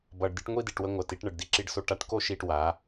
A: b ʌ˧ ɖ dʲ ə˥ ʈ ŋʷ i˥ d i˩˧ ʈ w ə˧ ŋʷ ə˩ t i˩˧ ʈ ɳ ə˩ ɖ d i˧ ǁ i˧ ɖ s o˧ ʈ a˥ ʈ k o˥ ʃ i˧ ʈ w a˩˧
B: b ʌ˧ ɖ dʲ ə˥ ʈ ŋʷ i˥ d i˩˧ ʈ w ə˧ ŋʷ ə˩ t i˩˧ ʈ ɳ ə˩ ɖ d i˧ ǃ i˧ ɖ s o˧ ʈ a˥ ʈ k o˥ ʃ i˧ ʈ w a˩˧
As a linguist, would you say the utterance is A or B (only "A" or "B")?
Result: A